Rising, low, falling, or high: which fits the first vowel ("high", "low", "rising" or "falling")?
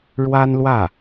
high